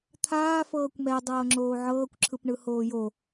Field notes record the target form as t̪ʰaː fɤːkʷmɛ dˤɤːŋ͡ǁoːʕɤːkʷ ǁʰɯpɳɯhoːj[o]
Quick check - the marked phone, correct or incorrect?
correct